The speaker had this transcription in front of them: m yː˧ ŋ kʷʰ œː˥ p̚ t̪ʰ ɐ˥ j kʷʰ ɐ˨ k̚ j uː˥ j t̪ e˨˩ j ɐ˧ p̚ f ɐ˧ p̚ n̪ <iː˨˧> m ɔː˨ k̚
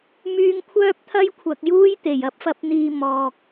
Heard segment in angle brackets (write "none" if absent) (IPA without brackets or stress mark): iː˨